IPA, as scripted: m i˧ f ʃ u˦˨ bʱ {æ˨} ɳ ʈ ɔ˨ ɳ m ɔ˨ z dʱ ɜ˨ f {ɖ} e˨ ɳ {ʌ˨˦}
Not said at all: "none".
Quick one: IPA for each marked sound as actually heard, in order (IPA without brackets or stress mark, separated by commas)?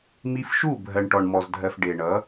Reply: ɜ˨, ɖ, ʌ˨˦